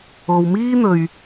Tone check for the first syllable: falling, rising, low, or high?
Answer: low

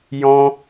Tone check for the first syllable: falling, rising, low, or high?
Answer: high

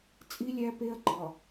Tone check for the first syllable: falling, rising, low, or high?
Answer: high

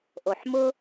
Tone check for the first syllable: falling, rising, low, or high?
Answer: low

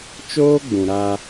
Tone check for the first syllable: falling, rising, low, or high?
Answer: high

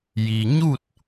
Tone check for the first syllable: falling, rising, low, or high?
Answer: low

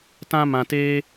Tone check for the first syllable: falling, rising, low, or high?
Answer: high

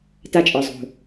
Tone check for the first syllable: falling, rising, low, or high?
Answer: high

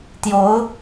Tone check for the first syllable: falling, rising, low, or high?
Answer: rising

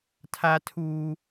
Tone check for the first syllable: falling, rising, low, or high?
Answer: high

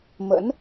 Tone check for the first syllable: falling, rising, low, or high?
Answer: rising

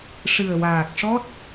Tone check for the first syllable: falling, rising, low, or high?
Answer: low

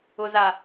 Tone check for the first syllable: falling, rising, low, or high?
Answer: low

